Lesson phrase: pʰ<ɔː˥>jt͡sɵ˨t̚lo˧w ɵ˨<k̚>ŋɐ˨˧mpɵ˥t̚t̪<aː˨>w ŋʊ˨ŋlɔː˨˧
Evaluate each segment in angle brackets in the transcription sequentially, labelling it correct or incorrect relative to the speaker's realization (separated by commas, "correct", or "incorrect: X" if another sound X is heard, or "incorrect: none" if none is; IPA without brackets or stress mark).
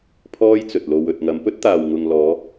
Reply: correct, incorrect: t̚, correct